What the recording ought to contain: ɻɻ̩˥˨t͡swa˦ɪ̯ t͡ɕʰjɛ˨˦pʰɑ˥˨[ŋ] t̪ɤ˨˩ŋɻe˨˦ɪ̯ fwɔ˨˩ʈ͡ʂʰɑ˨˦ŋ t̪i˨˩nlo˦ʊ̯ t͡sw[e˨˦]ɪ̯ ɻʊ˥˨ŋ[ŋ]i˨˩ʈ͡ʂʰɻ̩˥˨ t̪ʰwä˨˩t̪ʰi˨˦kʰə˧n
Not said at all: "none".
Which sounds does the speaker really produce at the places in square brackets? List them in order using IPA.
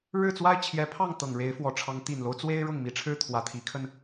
ŋ, e˦, m

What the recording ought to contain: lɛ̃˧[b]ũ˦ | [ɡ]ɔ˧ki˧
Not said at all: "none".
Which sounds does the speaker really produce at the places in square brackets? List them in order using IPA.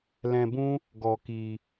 b, ɡ

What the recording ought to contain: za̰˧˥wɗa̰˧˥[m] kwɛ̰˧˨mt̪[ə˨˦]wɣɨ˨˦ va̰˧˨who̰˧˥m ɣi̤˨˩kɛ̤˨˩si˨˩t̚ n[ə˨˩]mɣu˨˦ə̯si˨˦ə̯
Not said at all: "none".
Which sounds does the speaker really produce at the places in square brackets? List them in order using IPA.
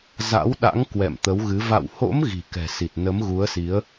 ŋ, ə˨˦, ə˨˦

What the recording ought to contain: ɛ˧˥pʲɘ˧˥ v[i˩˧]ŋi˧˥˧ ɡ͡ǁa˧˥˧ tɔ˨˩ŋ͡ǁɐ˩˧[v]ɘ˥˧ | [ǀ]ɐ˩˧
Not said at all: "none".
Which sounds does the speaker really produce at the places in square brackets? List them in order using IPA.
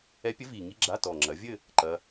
i˨˩, vʲ, ǃ

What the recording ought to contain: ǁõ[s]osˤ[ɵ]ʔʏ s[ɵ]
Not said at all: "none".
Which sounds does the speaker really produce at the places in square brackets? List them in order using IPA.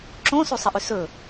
s, ə, ɵ

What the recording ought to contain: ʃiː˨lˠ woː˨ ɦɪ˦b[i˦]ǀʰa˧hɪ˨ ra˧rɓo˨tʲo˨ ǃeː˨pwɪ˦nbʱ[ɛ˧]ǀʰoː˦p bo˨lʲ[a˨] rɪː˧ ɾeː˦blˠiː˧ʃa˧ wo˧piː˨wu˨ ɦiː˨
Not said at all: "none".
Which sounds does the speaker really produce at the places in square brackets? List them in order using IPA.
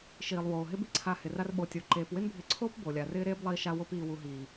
i˦, ɪ˧, a˨

